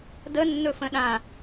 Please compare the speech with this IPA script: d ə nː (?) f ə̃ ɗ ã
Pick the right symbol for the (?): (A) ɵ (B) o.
A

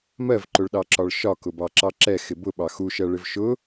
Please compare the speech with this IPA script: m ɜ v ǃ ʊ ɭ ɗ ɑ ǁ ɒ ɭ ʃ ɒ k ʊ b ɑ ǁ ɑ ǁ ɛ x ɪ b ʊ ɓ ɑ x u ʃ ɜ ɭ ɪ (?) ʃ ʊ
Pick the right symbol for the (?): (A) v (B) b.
A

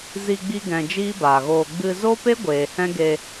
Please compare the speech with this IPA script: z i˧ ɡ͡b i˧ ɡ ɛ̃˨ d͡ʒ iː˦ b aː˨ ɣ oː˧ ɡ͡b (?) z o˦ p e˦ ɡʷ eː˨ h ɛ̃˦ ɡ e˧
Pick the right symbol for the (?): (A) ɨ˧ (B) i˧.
A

